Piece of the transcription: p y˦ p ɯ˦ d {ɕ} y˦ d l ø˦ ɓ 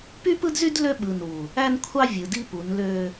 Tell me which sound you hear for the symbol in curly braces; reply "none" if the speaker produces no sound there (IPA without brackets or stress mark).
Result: z